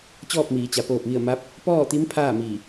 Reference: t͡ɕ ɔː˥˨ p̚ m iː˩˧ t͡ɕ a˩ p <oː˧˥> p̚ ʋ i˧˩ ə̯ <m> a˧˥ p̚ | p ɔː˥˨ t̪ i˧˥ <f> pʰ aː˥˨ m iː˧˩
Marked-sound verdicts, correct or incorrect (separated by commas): incorrect, correct, incorrect